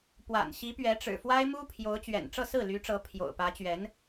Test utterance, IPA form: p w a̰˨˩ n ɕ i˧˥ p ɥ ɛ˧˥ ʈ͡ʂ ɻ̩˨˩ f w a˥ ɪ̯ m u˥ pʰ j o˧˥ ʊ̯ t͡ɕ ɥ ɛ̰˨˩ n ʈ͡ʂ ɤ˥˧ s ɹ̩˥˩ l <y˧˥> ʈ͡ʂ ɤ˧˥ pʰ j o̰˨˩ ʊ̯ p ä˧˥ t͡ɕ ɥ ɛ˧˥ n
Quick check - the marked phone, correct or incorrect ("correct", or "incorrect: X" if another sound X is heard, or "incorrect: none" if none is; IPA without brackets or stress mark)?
correct